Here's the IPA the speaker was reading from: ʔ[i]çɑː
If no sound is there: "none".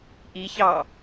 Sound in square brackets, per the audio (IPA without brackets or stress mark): i